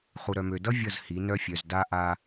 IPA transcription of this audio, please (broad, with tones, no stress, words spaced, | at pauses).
χu˨ɾœ˨mø˨dʌ˦ vʲʌ˦˨z hi˨˦ nœ˦fʲœ˨z da˦ʔa˦